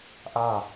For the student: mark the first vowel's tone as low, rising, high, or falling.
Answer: falling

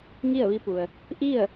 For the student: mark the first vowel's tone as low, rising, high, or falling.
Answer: falling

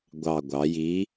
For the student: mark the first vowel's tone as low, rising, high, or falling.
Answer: low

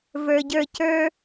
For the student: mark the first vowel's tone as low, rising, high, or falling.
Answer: low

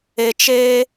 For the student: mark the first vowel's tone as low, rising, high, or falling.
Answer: low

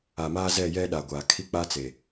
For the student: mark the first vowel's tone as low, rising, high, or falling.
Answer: low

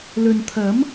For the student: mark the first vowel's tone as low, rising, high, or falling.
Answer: low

